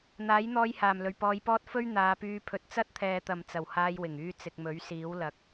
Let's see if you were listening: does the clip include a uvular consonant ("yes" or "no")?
no